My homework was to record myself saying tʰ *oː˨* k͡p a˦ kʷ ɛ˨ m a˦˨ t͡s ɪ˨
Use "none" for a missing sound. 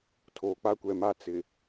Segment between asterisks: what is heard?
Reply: oː˨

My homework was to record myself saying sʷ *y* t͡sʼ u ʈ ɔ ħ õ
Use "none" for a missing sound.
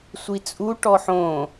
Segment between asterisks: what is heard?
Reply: i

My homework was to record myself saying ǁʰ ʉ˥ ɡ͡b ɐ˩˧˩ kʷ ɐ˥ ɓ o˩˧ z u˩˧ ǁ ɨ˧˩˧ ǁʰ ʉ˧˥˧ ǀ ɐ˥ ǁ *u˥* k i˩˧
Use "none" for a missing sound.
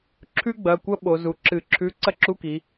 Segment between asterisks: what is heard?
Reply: u˧˥˧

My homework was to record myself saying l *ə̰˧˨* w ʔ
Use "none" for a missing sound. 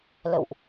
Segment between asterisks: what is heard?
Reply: ə̰˧˨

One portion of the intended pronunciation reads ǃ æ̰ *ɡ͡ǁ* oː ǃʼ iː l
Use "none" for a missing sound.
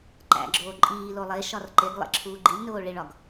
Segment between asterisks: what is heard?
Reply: ɡ͡ǁ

